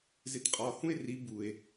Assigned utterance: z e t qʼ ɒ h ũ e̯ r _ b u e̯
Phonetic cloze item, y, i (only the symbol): i